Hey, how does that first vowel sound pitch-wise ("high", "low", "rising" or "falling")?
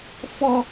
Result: high